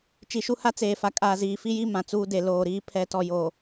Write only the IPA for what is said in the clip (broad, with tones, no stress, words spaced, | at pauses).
t͡ʃi˨ʃu˦ha˦ t͡seː˨fa˨ kʼaː˨ziː˨fi˦ji˦ mã˨t͡suː˦ de˨loː˨ɾiː˦ pʰɛ˨˦tɔ˨joː˨